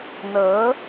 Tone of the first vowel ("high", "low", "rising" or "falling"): rising